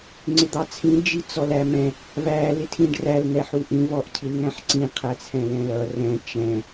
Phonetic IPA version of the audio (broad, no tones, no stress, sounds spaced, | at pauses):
ŋ͡ǀ ɪ d̪ ɑ t͡sʰ ĩ d͡ʒ i t͡s ɔ l æ m ɛ̃ | v æ l ɪ tʰ ĩ ɖ r æ l n̪ ɛ ħ u ʔ ĩ v ɔ ʔ cʰ i l ŋ æ̃ ħ ǀ ĩ qʰ æ t͡sʰ ɛ̃ l ɛ̃ l ʌ r ɛ̃ t͡ʃ ɛ̃